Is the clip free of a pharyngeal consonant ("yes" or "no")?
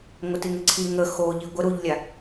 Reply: yes